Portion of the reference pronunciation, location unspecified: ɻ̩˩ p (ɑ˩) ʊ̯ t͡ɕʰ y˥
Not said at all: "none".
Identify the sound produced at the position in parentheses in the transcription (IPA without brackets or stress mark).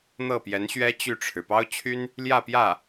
ɑ˥